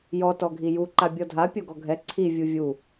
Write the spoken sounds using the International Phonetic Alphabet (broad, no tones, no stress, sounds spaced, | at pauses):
j ɔ t ɔ ɡʱ i j u ǃ a bʲ ɔ dʱ a pʲ o ɡ ɔ ɡʱ ɛ ǀʰ i vʲ u vʲ u